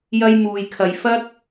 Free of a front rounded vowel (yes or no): yes